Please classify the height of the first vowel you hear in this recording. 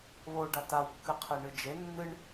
mid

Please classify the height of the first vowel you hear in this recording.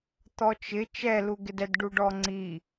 mid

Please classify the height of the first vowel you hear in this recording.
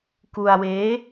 high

